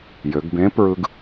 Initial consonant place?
palatal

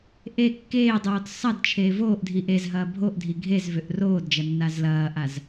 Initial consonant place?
glottal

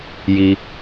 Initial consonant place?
palatal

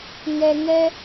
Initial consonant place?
velar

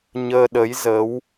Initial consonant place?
palatal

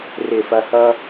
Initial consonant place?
alveolar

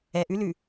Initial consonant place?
glottal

